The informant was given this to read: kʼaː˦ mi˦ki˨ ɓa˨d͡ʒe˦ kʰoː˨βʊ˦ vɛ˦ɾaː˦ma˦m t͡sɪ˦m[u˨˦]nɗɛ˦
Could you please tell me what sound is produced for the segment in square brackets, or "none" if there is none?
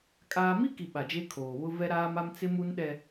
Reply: u˦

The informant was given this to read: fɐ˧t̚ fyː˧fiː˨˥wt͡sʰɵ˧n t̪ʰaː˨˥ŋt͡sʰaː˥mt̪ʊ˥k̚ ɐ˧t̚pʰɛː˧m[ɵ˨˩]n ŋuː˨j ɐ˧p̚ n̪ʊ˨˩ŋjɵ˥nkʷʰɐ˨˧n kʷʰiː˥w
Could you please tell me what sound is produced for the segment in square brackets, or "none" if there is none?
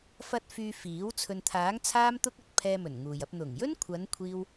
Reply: ɵ˨˩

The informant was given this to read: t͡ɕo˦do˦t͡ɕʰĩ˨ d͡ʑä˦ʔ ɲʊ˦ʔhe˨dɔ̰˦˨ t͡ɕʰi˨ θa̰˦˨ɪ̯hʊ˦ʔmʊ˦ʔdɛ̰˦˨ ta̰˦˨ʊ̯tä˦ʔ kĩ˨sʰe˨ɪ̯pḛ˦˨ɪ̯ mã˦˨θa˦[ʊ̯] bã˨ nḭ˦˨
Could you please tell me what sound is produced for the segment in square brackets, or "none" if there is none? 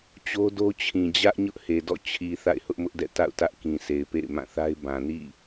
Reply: ɪ̯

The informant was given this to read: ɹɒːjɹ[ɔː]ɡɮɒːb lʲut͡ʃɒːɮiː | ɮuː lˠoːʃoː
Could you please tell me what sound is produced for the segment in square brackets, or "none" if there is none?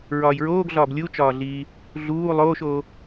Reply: oː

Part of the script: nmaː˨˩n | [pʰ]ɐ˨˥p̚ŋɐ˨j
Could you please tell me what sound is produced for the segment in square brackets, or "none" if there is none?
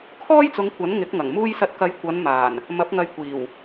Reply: m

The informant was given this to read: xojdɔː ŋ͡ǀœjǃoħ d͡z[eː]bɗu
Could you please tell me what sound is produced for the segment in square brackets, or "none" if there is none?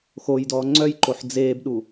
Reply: eː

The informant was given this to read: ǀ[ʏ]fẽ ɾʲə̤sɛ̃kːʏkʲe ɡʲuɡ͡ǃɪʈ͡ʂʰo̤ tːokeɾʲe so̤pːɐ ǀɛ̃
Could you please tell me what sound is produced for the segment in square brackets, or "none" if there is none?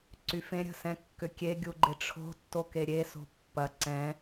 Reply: y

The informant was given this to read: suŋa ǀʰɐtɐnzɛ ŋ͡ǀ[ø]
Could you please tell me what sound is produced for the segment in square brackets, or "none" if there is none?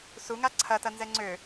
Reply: ø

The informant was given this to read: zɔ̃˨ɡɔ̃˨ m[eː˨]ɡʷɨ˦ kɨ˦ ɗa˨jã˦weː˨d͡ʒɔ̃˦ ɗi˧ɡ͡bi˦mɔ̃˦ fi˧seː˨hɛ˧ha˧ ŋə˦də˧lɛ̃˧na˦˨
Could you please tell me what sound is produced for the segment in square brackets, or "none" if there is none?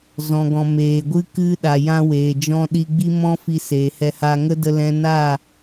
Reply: eː˨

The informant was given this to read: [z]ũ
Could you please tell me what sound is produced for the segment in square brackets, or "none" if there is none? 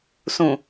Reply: s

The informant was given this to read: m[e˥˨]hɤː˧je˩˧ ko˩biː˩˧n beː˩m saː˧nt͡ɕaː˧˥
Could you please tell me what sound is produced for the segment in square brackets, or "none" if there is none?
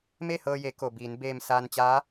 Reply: e˥˨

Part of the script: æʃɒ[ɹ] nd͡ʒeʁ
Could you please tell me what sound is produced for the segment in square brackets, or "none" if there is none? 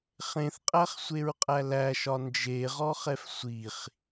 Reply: none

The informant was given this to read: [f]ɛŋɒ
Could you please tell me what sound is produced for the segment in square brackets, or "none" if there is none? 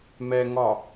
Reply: m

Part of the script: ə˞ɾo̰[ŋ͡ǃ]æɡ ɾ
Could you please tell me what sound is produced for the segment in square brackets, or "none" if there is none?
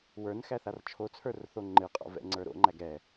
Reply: ŋ͡ǃ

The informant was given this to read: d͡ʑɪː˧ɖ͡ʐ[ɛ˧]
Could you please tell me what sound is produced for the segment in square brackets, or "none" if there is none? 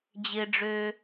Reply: ø˧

